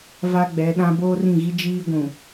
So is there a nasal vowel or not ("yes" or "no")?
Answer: yes